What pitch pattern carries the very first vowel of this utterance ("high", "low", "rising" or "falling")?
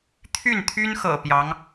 falling